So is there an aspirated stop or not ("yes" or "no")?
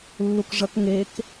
no